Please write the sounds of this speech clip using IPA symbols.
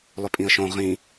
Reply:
lˠʏpʼĩə̯ʃõ ʁĩ

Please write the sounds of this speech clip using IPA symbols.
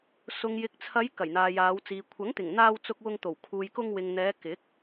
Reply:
sʊ˨ŋjɪ˨k̚t͡sʰɐ˨˧j kɐ˨˩jn̪aː˨jaː˨˧wt͡siː˨ kʷʰɐ˨˥ŋt̪ɪ˨˩ŋn̪aː˧w t͡sʊ˧k̚wʊ˧ŋt̪o˨˩w kʰuː˨jkʊ˧ŋ wɪ˨ŋn̪ɛː˨˧ kɪ˨˥k̚

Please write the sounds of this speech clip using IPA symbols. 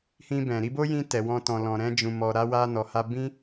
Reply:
hĩ˧bɛ̃˨ ɾi˧bo˦jĩ˧ tɛ˨wɔ̃˧ tɔ̃˨lɔ̃˨ ɾɛ̃˧d͡ʒũ˨mɔ˨ɾa˧ wa˧ nɔ˨ha˧ bĩ˦

